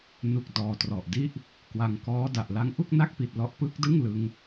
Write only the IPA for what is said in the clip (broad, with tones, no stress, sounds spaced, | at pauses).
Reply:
n u˨˩ k̚ d ɔː˧ t r ɔ˨˩ ʔ d i˥˩ ʔ | k w a˧ ŋ k ɔː˦˥ d a˨˩ ʔ l a˦˥ ŋ ʔ u˥˩ k̚ n a˥˩ k̚ p i˨˩ t̚ l ɔ˥˩ ʔ p ɯ˦˥ k̚ d ɯ˥˩ ŋ l ɯ˦˥ ŋ